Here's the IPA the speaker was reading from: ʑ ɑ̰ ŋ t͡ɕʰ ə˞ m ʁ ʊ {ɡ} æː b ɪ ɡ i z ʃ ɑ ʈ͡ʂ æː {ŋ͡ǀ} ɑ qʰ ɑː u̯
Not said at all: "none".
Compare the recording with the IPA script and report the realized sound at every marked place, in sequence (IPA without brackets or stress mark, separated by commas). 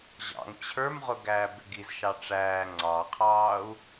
ɡ, ŋ͡ǀ